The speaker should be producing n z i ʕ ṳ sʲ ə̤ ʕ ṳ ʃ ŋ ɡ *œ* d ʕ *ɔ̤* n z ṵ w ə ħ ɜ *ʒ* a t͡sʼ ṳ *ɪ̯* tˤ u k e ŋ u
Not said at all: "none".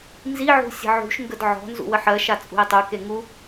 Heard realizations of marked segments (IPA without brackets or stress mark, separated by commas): ə, ɔ̤, ʃ, ɪ̯